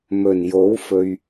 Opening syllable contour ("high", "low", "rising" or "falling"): low